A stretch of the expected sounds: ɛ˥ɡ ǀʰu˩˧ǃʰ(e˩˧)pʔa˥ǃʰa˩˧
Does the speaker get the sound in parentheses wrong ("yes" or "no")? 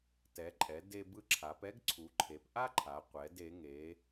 no